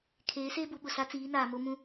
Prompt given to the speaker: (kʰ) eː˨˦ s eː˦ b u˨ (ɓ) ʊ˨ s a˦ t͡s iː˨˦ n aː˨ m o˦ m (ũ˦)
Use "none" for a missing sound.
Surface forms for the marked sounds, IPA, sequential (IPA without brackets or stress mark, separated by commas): kʰ, ɓ, ũ˦